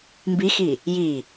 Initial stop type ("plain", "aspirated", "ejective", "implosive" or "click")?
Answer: plain